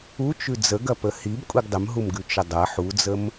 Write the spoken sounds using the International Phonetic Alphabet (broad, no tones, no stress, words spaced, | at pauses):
u t͡ʃʉd͡zə ɡɐpəhib kʷʼiɡdˤəmɦumɡʉ t͡ʃədˤɐ ħud͡zəm